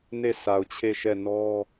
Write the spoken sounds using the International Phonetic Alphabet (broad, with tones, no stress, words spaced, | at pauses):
ne˦˨sa˨ʊ̯t͡ɕʰe˦˨ʃɛ˦˨ nɔ˦